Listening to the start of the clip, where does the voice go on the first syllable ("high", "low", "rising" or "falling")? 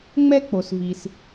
high